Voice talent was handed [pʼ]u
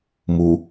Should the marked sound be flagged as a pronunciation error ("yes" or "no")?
yes